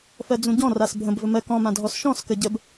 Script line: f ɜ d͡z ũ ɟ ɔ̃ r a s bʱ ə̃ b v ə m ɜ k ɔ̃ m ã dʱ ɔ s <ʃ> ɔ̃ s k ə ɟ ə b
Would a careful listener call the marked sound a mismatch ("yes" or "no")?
no